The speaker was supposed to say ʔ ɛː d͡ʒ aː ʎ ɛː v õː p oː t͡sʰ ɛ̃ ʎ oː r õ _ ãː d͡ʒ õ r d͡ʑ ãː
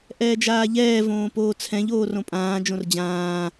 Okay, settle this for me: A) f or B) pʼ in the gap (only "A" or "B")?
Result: B